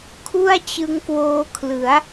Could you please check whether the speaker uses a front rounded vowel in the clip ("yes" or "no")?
no